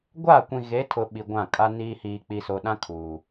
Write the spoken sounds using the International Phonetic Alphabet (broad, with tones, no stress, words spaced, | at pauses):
ɡʷa˦˨kʷĩ˨ɣe˨˦ tʰʊ˨ ɓi˨ɡʷã˦˨kʼa˦niː˦ hiː˨k͡pi˨so˨ɗã˦ kʰuː˨